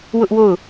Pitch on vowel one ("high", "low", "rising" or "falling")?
high